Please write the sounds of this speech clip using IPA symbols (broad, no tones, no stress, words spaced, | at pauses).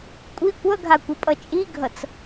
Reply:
kʷʼi kʷʌɡʱakʷʌpʼʌ t͡ʃʼiɡʱʌt͡s